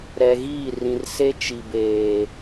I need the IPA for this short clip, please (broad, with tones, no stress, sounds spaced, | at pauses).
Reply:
ɾ ɛ˨ ɣ iː˦˨ r ĩ˨ r s e˦ t͡ʃ i˨ b eː˨